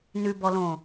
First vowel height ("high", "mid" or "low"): high